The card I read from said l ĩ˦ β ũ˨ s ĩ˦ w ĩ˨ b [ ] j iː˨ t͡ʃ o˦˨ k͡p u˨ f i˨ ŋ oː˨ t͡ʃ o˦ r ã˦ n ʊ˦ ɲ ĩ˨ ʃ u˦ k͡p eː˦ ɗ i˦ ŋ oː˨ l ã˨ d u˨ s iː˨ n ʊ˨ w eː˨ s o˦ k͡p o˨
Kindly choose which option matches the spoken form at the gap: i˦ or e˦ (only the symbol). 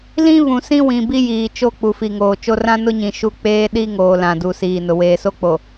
i˦